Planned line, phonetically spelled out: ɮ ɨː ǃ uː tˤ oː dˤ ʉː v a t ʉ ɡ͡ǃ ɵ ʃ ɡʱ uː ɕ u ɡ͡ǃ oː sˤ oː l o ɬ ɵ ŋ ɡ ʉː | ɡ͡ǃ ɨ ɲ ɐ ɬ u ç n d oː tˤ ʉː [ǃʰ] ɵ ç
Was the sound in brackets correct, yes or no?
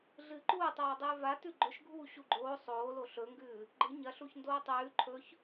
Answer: yes